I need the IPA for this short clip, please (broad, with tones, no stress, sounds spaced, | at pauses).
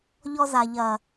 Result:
ʎ ɔ˧ z a˨ ʎ ɐ˨